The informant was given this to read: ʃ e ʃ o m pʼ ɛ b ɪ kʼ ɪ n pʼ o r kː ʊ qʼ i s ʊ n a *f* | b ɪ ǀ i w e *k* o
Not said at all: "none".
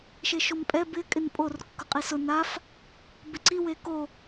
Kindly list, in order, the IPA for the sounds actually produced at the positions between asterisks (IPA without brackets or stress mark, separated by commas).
f, k